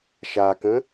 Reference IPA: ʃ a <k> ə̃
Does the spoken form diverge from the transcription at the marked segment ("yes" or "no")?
no